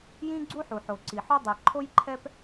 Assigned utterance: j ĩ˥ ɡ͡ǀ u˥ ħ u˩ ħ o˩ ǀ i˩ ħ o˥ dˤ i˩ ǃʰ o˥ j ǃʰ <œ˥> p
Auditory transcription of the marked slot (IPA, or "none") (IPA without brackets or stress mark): ɛ˥